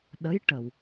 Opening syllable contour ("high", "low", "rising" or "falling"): rising